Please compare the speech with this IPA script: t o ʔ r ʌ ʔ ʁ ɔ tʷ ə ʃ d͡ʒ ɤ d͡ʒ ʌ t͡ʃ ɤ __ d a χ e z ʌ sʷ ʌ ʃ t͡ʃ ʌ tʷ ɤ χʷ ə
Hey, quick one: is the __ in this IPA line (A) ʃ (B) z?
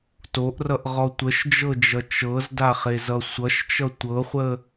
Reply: B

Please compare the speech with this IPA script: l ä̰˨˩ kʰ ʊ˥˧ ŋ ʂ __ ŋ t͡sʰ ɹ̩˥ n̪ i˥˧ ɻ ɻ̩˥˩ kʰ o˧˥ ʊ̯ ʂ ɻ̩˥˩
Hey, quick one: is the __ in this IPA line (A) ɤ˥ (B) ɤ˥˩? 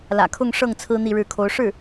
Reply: B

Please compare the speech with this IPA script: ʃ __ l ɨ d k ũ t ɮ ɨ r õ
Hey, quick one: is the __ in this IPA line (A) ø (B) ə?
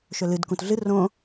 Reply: A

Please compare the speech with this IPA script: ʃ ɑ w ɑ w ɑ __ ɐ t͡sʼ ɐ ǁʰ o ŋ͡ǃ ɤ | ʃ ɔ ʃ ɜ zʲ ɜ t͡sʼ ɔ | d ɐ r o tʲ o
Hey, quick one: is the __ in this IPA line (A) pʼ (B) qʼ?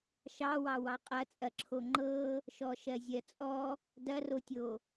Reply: B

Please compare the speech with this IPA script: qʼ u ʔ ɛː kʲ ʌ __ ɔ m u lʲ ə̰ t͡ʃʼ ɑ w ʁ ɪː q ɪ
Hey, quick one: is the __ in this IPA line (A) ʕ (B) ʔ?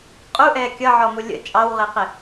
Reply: A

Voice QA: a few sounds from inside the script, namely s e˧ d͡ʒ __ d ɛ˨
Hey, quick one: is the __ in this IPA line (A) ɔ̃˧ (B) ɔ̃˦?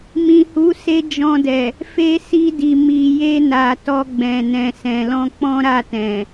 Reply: A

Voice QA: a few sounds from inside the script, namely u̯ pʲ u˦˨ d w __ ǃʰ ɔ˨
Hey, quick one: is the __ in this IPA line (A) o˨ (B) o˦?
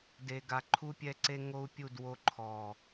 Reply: B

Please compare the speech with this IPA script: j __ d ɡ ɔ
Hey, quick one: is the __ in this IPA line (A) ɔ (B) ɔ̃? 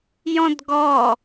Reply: B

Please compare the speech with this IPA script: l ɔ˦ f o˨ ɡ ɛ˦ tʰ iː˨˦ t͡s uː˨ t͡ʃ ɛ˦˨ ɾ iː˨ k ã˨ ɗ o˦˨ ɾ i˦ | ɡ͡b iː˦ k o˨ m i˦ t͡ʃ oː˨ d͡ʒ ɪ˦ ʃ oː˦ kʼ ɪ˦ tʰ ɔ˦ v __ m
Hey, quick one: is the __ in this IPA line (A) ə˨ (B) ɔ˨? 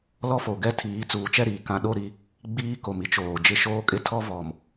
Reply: B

